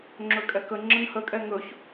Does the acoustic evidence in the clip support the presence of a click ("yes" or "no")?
yes